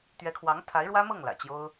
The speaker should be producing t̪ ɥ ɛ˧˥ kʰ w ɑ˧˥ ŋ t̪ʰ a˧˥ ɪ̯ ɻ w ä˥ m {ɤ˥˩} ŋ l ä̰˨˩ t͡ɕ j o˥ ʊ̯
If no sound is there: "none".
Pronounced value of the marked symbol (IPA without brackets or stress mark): ɤ˥˩